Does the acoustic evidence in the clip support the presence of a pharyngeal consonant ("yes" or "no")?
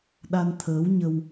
no